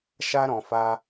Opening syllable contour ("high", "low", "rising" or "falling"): high